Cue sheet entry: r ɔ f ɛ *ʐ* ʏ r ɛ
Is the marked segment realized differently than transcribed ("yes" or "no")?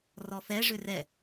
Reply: no